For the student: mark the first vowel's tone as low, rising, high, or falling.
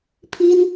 high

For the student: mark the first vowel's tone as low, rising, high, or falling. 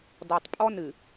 low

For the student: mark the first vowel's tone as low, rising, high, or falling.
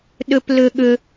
high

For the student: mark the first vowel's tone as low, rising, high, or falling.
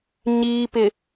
low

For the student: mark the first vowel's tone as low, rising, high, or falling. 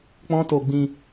high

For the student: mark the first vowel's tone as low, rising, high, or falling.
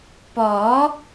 rising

